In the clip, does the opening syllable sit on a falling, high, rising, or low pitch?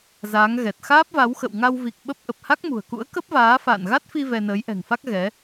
rising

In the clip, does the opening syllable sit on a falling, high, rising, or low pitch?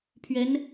rising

